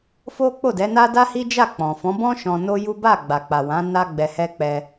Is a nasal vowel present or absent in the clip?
present